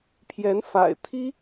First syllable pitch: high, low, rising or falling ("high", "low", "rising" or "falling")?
rising